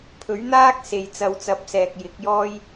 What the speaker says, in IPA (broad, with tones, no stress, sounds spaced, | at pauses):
pʰ ɵ˨˥ ɥ n̪ aː˥ k̚ s e˨ j t͡s ɐ˨˧ w t͡s ɐ˨˥ p̚ s ɛː˨ k̚ j ɪ˨˥ k̚ j ɔː˥ j